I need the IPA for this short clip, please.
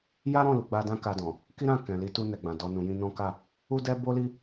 j a˦ ɾ ɔ̃˦˨ l u˨ ɡ͡b a˧ d ã˦ k a˧ d ɔ̃˨ | k i˦ ɾ ã˦˨ k ɛ̃˨ l i˨˦ t u˧ n ɛ˨ ɡ͡b ã˨ d ɔ˨ n ũ˨ j ĩ˧ n ɔ̃˦ k a˦˨ | u˦ d ɛ˦ b o˦ l i˦

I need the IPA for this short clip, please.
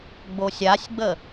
ɡ͡b o sʲ a sʲ ɡ͡b ə

